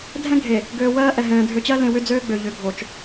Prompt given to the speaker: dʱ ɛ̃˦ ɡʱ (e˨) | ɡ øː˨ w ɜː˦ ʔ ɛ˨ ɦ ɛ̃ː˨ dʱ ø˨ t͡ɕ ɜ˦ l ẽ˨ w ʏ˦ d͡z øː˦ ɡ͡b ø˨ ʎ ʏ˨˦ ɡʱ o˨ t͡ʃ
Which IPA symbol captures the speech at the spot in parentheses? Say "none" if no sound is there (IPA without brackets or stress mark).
e˨